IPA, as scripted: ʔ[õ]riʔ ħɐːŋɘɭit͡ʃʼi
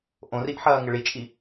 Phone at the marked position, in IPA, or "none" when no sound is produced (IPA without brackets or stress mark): õ